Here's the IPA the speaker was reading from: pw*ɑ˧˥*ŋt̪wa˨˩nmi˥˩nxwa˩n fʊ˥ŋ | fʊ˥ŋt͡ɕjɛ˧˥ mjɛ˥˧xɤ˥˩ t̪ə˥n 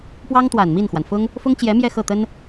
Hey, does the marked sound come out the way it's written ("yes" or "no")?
no